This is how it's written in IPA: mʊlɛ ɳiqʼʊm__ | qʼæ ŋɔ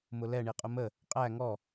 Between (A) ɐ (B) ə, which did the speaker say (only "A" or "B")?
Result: B